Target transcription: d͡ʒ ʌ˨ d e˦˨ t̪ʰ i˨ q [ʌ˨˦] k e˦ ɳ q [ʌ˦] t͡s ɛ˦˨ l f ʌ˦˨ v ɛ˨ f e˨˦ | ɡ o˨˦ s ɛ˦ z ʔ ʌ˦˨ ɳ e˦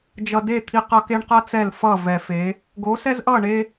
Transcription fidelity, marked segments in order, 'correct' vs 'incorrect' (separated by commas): incorrect, correct